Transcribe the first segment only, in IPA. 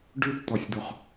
ɖ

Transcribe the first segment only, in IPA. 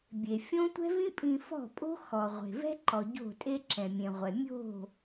bʲ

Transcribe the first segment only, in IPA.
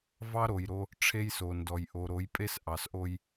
v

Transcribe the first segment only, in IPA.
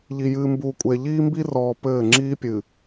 ʎ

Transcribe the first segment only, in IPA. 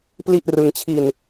p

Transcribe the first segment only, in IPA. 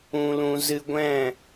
ũ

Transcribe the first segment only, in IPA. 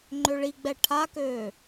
ŋ͡ǃ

